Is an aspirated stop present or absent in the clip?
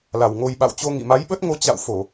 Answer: absent